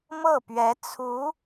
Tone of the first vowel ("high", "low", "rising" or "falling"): falling